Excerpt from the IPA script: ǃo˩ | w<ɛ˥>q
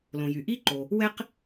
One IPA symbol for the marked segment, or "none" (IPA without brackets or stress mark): ɛ˥